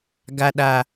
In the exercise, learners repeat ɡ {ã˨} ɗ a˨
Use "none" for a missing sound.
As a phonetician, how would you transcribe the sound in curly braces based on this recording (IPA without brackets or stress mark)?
a˨